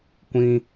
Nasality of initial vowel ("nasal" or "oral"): nasal